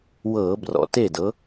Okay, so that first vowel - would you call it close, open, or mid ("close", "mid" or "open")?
mid